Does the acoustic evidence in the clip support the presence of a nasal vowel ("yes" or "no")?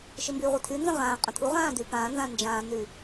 yes